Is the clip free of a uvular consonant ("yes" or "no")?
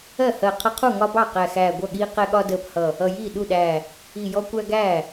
no